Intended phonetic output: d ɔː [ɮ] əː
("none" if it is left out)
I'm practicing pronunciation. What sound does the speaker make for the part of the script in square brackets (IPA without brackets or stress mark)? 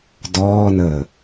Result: n